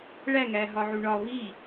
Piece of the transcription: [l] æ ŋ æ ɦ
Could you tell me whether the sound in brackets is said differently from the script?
yes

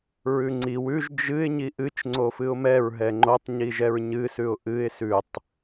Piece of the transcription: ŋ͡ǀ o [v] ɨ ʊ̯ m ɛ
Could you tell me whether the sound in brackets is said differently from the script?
yes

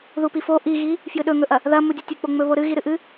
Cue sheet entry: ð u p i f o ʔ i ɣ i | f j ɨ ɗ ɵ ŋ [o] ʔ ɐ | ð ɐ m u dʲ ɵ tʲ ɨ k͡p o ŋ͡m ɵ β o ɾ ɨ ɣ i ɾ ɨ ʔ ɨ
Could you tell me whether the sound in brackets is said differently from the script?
yes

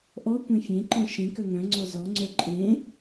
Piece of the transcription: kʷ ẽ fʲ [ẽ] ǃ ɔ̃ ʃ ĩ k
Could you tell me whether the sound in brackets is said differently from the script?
no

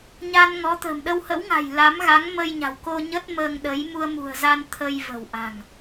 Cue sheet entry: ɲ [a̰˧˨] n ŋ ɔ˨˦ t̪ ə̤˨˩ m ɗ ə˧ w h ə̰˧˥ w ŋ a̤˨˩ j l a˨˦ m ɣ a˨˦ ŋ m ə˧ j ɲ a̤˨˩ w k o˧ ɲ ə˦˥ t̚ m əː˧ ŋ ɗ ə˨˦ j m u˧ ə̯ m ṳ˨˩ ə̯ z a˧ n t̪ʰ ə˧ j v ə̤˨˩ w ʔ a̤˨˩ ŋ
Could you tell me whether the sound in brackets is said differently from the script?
yes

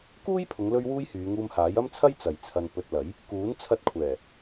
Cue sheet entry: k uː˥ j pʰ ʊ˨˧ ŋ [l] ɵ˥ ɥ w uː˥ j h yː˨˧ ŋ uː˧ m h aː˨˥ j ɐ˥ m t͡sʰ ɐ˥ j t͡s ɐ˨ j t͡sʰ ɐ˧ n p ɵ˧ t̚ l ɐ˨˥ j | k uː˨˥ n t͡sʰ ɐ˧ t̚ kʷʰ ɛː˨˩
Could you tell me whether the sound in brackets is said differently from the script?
no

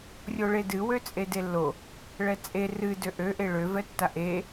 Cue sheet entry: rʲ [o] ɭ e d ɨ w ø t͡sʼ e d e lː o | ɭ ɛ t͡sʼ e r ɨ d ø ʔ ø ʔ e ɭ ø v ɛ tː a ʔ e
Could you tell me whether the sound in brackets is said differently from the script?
no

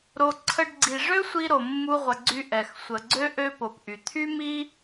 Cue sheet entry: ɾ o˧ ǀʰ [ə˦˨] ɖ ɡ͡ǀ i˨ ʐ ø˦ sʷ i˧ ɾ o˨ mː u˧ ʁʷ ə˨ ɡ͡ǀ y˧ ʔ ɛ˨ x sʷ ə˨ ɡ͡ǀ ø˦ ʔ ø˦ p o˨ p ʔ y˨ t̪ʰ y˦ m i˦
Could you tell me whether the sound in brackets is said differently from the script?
yes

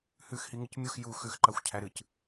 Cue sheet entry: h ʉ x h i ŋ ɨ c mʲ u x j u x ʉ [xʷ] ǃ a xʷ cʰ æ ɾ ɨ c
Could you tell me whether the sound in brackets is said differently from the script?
yes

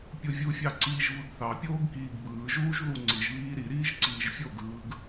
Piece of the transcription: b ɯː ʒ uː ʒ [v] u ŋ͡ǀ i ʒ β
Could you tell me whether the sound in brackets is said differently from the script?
yes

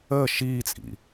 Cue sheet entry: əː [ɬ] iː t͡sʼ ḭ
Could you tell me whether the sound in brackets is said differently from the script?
yes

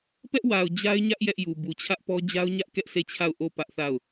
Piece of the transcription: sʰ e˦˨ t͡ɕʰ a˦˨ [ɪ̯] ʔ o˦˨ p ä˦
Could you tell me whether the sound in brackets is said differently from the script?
yes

